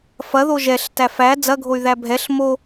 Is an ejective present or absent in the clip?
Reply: absent